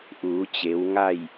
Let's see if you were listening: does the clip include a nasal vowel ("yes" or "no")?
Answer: no